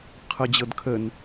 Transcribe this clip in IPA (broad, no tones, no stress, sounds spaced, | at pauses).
qʰ ɤ d͡ʑ ɤ d kʰ ə n